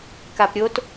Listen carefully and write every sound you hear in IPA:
kapɾʲot

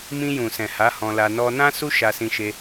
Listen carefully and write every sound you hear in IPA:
mĩ˧jũ˨sɛ̃˨ ha˨˦hɔ̃˧la˧ nɔ˧nã˦ su˦ʃa˧sĩ˧ʃe˧

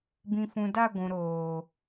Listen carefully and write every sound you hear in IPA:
bĩ˨fũ˨da˦˨ ɡʷũ˨ɾoː˨

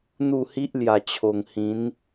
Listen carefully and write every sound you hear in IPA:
n̪u˥˧hi˦ʔ lja˨˩t͡ɕʰo˨˩ŋ hĩ˨˦n

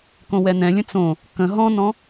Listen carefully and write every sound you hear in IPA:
kõwɛn̪ɛ̃lʲə̃ t͡sõ | kə̃ ɦɔ̃nɔ̃

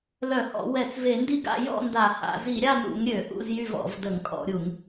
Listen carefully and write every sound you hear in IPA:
lœ˧˩˧hɔ̰˧˩˧ wɛ˧˩˧t͡sve˧˩˧ndi˥˨ɡa̰˥˨ jɔ̰˥˨nda˧˩˧ha̰˧˩˧ zi˧˩˧ɾʲa˥˨nṵ˧˩˧ŋ ɾʲø˧˩˧ ʔṵ˥˨zjy˥˨vɔ̰˧˩˧v də˧˩˧ŋkʼɔ̰˧˩˧ɾʲu˧˩˧ŋ

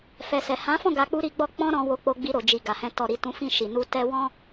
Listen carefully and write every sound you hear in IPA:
fɛ˨sɛ˨ hã˨˦fɔ̃˦˨ ɡa˧k͡pu˦ɾi˧ɡ͡bɔ˦ k͡pɔ̃˦ɾɔ̃˧wo˧ k͡po˧ɡ͡bi˧ɾo˨d͡ʒi˨ ɡa˨hɛ̃˧ tɔ˨ɾi˨ tũ˨˦ fĩ˦˨ʃi˨ nu˧ tɛ˦ wɔ̃˦

